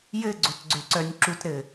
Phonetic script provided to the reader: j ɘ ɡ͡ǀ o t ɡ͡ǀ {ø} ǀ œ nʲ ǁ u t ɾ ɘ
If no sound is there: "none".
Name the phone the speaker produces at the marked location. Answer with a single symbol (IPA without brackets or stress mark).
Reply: ø